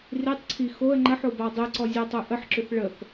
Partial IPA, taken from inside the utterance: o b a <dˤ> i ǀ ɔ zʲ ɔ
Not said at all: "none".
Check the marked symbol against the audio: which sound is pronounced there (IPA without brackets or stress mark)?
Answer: dˤ